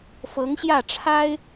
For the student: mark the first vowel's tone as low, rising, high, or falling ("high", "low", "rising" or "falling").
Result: rising